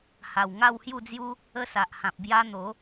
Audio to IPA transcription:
h a˨˩ w ŋ a˥˧ w h j u˥˧ d͡z j u˦ | ə˥˧ s a˨ ʔ h ã˨ p̚ b j a˦ n̪ o˨˦

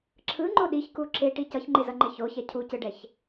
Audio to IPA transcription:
ǁʰ ɯ ŋ͡ǃ o ɗ i ç k u ǁ e ʈ i c ʌ ç ŋ͡ǃ e z ʌ ŋ͡ǃ e ç o ç ɛ cʰ u c ɯ ɖ ɛ ç

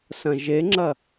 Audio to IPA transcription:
s ɐ̃ ʒ e ŋ͡ǁ ɐ

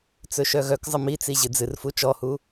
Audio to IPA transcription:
t͡s ɵ ʃ œ ɣ œ k zˤ ə m i t͡s i ʑ ɨ d͡z ɨ r f u t͡ʃ ɔ h u

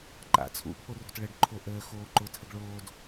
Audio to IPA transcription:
ǃ a̰ t͡sʰ ṵ pʰ o r o̤ t ɭ ə ɖ ǃʰ o ʔ əː x oː ǃ ʊ tʰ ə ɡ ɭ oː d

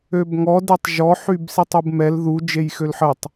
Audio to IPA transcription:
ø b ŋ ɔ d e tˤ ʒ ɔ ħ y b s i tˤ u b m ɛ l ð u d͡ʒ e j x ø l ħ ə tˤ

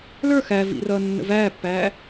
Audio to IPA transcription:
l ə˞ x æ v ḭ r ʌː nː ə̰ v æː pː æː

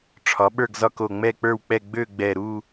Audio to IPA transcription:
ʈ͡ʂʰ ɒ˩˥ ɓ ə˞˥˨ ɡ z ɒ˥˨ k o˧˩ ŋ͡m ɛ˥˨ k͡p ə˞˥˨ w k͡p ɛ˥˨ ɡ͡b ø˥˨ ɡ͡b ɛ˧˩ ɾ u˥˨

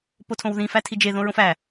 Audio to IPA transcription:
p o tʰ õ w ð ĩ f æ tʰ i d͡ʒ e ð õ ɹ õ f æ

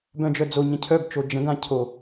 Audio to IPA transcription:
b œ̃ d͡ʒ œ d͡z o ɲ ə̃ cʰ œ b t͡ʃ o d͡ʒ ə̃ ɡ ã cʰ o

